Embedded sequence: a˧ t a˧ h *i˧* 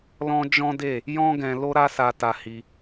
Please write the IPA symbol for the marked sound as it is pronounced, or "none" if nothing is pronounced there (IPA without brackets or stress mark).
i˧